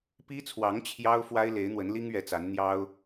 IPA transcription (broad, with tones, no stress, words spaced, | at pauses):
pi˥t͡sʰwɑ˧˥ŋ t͡ɕʰjɑ˥ʊ̯fwa˥ɪ̯ le˧˥ɪ̯n̪wə˧˥nli˥ŋ ɥɛ˧˥t͡sa˧˥nn̪jɑ˥ʊ̯